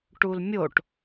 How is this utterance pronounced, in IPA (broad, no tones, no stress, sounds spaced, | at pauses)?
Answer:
ʈ u l mʲ o ʈ